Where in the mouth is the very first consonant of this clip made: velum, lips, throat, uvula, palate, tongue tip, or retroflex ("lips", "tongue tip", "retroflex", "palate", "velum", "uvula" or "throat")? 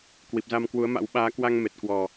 velum